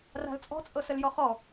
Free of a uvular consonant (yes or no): no